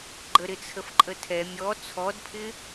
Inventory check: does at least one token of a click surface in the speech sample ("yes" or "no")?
yes